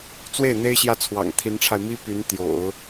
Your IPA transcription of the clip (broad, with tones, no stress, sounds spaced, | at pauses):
t͡s w e˥˩ ɪ̯ n̪ e˥ ɪ̯ ɕ j ä˥˩ t͡sʰ w ɑ̰˨˩ ŋ t̪ʰ i˧˥ n ʈ͡ʂʰ a˧ ɪ̯ m i˥ p y˧˥ n t̪ j o̰˨˩˦ ʊ̯